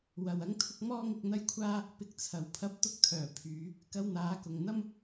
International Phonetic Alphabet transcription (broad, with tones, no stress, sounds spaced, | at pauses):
w ɐ˨ w ɐ˧ ŋ t̪ʰ ʊ˧ k̚ m ɔː˥ ŋ ɪ˧ k̚ n̪ ɐ˥ j kʷʰ aː˥ | p ɪ˧ k̚ t͡sʰ ɐ˨ w pʰ ɐ˧ p̚ t̪ ʊ˧ k̚ t̪ʰ œː˨˩ pʰ yː˨˧ | k ɐ˧ w n̪ aː˨˧ k ʊ˨ ŋ n̪ ɐ˥ m